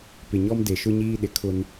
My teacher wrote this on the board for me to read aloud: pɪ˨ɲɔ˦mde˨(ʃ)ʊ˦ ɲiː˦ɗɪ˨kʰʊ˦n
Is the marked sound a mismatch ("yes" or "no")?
no